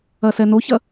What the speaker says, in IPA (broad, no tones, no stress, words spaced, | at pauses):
ɐsɛnoçɐ